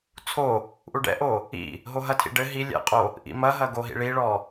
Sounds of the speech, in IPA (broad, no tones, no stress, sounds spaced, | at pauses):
t͡sʰ o | ʔ u ɖ ɛ̰ ʔ o | ḭ | ɦ o ɦ ɐ tʰ ḭ ɖ ɘ ɦ i lʲ ɛ̰ qʼ o | ʔ ḭ m ɐ ɦ ɐ ɡ o ɦ ḭ ɭ i ɭ ɔ